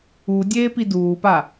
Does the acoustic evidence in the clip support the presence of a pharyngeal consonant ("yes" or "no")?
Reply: no